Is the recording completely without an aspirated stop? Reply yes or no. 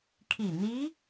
no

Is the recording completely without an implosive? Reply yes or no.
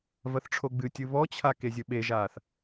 no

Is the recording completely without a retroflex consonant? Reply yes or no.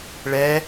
no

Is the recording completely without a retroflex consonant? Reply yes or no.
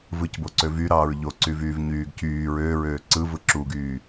yes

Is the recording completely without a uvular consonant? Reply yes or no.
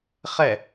no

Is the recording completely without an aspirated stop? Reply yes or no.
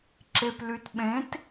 yes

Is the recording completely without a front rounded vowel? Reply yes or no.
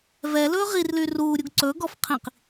no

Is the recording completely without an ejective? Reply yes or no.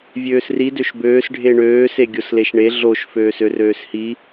yes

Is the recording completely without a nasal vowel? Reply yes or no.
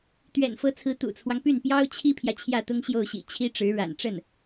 yes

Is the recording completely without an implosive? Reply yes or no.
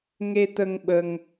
no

